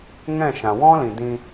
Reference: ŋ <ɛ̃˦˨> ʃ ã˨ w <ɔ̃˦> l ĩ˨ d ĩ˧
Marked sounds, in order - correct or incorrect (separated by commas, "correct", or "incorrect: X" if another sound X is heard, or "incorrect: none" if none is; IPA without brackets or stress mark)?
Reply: correct, correct